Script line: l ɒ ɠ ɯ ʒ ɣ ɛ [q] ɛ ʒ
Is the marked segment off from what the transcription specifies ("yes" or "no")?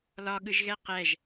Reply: no